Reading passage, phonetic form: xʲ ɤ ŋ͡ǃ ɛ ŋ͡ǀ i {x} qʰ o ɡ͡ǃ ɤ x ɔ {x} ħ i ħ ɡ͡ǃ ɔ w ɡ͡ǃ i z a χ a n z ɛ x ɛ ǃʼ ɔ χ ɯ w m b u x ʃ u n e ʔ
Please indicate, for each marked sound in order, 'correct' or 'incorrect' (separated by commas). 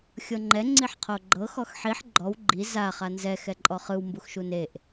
incorrect, correct